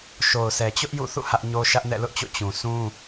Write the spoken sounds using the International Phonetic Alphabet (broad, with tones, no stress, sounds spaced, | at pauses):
ʃ o˨ ʊ̯ s ɛ˨ t͡ɕ ʊ˦ ʔ j ṵ˦˨ θ ṵ˦˨ h ä˦ ʔ ɲ o˦ ʃ ä˦ ʔ n ɛ̰˦˨ l ʊ˦ ʔ t͡ɕ o̰˦˨ t͡ɕ ũ˨ s ũ˦